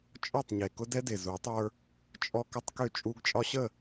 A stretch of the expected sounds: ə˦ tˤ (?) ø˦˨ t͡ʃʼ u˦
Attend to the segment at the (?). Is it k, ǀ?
k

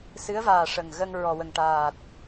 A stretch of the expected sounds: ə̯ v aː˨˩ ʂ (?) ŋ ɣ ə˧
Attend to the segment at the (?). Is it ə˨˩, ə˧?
ə˨˩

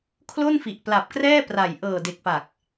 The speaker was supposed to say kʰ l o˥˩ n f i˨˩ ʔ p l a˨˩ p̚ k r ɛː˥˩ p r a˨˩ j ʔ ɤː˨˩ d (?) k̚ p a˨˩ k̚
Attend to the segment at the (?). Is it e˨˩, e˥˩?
e˨˩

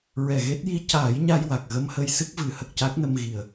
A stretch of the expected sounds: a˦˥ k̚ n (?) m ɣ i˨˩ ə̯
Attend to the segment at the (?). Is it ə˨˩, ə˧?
ə˧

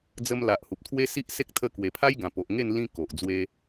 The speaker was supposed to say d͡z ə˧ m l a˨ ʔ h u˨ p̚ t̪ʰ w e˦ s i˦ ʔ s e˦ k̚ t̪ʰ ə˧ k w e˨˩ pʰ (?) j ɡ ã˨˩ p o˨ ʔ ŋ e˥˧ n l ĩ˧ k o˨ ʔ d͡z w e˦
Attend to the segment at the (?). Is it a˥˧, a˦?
a˦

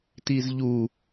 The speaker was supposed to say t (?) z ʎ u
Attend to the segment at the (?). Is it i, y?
i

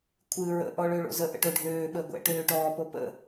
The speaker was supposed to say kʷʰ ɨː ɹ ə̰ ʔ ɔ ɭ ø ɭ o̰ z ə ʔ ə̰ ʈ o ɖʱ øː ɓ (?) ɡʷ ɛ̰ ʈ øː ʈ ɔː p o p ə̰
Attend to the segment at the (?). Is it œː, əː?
əː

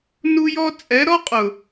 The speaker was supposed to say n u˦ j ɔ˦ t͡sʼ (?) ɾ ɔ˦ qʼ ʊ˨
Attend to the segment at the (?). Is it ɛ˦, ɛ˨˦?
ɛ˨˦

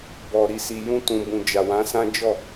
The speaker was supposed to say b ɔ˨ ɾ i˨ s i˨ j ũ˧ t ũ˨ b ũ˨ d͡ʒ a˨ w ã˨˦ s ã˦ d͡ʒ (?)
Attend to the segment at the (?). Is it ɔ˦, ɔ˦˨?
ɔ˦˨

